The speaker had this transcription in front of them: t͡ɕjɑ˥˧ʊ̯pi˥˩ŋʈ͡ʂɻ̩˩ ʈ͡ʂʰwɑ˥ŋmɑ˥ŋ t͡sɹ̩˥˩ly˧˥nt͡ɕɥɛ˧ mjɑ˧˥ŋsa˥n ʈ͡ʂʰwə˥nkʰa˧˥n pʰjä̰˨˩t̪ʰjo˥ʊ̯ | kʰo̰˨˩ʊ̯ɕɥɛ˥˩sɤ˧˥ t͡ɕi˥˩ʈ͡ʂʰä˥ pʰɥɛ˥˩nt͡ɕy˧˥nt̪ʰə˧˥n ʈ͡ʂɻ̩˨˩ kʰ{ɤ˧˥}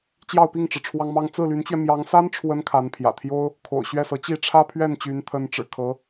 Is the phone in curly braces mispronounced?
no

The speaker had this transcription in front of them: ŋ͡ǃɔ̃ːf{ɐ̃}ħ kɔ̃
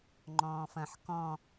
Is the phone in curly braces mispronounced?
no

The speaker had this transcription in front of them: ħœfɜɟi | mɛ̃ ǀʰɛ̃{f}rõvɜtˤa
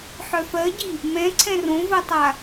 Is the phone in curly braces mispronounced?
yes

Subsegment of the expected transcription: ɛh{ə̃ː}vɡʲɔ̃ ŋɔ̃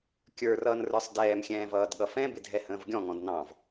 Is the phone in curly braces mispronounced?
no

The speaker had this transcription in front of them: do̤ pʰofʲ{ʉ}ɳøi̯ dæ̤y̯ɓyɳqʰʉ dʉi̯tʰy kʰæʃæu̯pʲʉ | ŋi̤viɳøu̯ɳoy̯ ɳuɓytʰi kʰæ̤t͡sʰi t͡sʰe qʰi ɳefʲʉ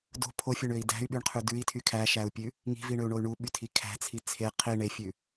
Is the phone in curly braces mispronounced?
yes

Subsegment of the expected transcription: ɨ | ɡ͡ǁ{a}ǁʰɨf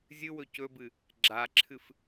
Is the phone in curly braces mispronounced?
no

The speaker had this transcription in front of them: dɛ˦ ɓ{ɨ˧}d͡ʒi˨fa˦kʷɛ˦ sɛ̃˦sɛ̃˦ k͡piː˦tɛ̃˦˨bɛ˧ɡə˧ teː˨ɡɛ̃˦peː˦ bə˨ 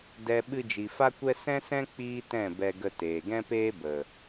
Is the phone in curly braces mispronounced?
no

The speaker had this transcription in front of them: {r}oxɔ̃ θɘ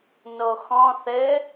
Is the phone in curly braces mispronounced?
yes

